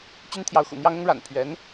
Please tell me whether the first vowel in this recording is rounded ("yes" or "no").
yes